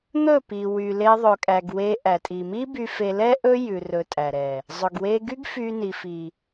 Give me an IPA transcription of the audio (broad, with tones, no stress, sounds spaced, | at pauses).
n̪ ɵ˦˨ p i˨ w y˨ l e˦ ðˤ ɵ˧ kʼ æ˧ ɡ w e˦ ʔ æ˨ tʼ i˨ m i˦ b y˧ f e˧ l ɛ˦ ʔ ɵ˦ j ʉ˧ r ɵ˧ tʼ æ˨ ɾ ɛ˨ | zˤ ɵ˨ ɡ w e˧ ɡ y˦ ɡ f y˧ n i˨ f i˨